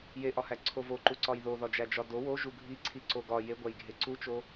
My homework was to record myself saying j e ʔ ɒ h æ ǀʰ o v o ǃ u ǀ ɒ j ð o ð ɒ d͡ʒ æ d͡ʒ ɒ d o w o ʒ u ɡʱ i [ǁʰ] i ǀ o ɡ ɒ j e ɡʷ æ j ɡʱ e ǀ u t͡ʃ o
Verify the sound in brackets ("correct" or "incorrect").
incorrect